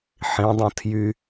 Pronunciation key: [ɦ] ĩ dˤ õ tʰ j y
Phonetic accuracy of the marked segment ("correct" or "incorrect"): incorrect